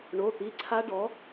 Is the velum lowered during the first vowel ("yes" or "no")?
no